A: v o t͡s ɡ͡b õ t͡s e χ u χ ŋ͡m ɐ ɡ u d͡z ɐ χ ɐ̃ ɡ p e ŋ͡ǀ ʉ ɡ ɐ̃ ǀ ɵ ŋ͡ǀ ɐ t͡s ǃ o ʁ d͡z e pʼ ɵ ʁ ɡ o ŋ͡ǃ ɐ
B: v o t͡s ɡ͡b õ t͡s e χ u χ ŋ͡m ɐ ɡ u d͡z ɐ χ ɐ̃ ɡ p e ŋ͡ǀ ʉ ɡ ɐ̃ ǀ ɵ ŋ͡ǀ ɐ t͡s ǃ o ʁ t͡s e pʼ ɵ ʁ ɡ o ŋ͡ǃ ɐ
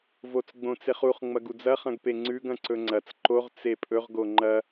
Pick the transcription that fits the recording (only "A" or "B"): B